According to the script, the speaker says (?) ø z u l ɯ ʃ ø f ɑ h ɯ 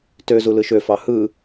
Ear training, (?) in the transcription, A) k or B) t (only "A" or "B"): B